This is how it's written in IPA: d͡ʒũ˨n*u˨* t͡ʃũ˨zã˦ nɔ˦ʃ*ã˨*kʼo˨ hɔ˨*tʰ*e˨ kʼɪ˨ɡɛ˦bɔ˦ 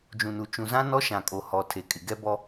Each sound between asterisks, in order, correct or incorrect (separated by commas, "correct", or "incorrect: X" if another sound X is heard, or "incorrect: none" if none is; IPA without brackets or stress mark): correct, correct, correct